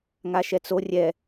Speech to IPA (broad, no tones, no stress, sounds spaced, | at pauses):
ŋ a ʃ ɛ t͡s o rʲ ɛ